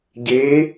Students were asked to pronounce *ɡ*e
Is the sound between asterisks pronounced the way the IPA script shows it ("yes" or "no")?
no